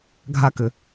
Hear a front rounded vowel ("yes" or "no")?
yes